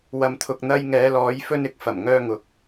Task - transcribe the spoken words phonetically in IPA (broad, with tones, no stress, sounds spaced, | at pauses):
w ɐ˨ m t̪ʰ ʊ˨ k̚ n̪ ɐ˧ j ŋ ɛː˨˧ l ɔː˨˧ j f ɵ˧ n ɪ˨ k̚ f ɐ˨˩ m ŋ œː˧ ŋ ʊ˨˥ k̚